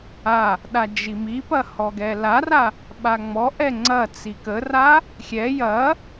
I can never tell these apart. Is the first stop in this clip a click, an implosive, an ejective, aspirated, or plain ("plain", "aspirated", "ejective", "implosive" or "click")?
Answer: implosive